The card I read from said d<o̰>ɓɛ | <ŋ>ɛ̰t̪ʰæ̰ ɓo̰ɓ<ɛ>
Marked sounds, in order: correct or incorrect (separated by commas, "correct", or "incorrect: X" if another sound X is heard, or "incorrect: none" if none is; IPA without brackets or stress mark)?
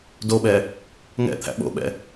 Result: incorrect: o, correct, incorrect: ɛ̰